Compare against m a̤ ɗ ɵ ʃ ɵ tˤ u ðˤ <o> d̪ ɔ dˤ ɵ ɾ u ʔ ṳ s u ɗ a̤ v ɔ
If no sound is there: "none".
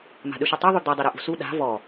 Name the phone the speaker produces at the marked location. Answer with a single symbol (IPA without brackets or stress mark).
u